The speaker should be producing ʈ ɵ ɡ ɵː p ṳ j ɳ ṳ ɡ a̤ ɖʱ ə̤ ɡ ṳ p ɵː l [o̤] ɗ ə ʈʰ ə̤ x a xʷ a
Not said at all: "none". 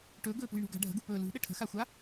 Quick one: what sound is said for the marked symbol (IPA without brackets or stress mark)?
ṳ